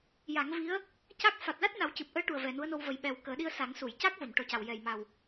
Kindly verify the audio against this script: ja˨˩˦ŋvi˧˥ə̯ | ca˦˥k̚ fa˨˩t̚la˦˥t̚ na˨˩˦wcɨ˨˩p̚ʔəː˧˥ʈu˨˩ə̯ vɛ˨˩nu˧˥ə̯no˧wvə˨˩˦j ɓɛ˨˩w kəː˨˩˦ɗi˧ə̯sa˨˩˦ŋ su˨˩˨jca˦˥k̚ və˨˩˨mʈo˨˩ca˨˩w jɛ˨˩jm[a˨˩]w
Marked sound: correct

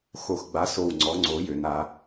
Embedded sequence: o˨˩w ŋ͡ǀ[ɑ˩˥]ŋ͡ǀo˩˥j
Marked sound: incorrect: ɔ˩˥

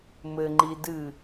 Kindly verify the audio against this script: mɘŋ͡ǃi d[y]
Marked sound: incorrect: ɨ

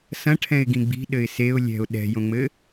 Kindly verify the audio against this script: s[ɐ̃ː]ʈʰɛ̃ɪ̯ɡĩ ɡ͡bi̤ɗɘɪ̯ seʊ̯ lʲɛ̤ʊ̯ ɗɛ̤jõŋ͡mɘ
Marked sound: incorrect: ɐ̃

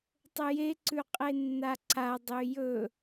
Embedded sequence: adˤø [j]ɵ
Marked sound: correct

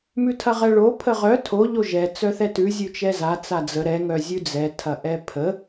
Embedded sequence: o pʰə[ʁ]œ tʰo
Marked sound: correct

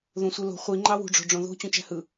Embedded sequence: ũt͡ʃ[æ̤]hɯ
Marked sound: correct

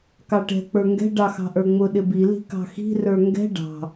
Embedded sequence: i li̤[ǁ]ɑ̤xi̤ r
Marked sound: incorrect: k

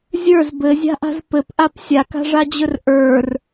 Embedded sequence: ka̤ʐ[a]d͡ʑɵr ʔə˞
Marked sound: correct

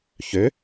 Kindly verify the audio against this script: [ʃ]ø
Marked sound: incorrect: ç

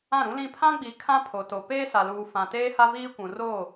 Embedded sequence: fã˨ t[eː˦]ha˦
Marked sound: correct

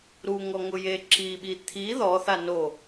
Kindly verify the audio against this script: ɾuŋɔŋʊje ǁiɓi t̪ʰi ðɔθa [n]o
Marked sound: correct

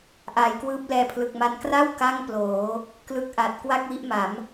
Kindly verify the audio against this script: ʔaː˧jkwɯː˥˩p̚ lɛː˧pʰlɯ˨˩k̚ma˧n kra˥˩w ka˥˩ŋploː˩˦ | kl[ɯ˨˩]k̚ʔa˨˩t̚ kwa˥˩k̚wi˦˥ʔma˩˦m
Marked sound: incorrect: ɯ˦˥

